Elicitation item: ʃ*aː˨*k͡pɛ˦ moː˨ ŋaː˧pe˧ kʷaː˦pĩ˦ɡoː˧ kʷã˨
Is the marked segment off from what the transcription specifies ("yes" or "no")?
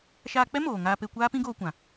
yes